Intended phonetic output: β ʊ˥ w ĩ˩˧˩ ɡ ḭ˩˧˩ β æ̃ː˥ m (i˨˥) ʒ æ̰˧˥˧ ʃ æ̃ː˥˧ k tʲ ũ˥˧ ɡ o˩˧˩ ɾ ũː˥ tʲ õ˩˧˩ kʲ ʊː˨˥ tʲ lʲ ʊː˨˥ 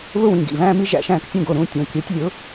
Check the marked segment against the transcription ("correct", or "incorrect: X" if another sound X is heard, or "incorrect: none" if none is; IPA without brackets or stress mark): incorrect: i˥